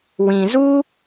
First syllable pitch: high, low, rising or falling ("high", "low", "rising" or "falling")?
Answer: low